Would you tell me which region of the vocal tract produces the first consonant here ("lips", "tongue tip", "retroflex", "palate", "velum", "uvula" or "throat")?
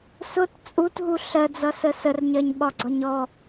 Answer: tongue tip